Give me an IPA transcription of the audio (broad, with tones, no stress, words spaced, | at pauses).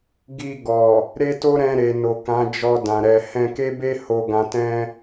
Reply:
ɡi˧ɡɔ˨ | ɾe˦to˦ ɾɛ̃˧ɾe˨no˨ kã˨˦d͡ʒɔ˧dã˨ ɾɛ˨hɛ̃˧ke˦be˦ ho˧ ɡã˧tɛ̃˦